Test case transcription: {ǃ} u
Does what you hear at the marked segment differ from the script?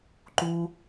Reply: no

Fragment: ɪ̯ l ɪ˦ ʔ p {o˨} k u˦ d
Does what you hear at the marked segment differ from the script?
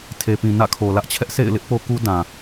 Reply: yes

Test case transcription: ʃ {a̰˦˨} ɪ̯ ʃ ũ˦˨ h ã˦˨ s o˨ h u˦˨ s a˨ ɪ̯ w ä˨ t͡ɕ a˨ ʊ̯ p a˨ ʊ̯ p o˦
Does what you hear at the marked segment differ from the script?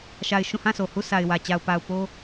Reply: yes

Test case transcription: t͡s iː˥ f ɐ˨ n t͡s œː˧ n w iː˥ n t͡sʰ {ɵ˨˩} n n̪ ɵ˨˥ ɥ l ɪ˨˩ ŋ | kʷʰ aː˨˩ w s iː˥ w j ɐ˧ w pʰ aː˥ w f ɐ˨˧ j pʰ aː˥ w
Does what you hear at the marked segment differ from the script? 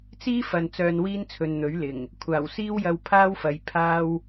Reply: yes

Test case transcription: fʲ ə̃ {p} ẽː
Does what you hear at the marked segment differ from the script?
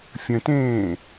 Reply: yes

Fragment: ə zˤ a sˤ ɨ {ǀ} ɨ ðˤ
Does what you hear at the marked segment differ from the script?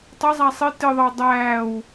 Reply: yes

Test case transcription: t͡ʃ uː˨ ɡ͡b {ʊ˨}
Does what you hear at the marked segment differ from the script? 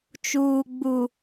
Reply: yes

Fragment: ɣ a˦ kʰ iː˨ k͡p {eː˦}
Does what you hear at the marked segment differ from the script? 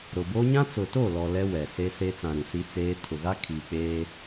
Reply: no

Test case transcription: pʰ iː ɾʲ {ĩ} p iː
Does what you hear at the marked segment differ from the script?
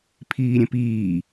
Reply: yes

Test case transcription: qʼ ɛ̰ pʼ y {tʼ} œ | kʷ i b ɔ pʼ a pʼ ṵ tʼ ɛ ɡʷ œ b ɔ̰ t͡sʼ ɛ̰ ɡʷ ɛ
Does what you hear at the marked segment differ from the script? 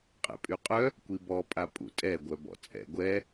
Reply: yes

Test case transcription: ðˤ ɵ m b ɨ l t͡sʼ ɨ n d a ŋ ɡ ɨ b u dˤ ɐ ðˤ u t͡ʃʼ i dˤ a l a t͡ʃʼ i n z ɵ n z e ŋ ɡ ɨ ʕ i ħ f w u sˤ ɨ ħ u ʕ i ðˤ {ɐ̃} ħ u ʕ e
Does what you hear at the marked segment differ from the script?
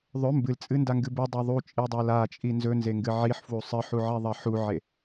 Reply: yes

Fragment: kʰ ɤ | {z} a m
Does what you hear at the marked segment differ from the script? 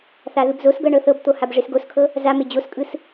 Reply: no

